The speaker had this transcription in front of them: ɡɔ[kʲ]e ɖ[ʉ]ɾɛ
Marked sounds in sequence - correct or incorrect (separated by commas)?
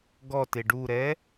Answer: incorrect, incorrect